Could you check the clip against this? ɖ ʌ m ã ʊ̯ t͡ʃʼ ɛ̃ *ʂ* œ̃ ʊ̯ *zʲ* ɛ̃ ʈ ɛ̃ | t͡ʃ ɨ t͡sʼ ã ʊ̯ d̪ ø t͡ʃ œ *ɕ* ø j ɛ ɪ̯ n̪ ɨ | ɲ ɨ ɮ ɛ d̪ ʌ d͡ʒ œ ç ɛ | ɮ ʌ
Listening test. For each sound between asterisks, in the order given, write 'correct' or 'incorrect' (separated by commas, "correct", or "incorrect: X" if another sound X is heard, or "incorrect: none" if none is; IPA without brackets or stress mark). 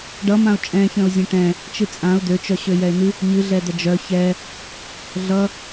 incorrect: ç, correct, correct